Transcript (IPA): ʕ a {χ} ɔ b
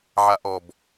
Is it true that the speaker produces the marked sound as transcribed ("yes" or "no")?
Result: no